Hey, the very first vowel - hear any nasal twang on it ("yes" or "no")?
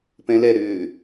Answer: yes